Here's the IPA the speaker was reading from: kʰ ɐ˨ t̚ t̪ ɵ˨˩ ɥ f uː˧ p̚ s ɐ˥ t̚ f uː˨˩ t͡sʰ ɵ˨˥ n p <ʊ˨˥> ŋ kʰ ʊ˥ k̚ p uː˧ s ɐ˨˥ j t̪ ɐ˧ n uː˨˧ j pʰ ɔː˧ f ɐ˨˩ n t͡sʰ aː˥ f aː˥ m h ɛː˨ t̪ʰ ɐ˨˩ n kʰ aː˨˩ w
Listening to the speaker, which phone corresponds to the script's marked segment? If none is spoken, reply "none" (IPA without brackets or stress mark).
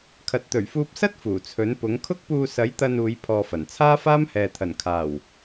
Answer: ʊ˨˥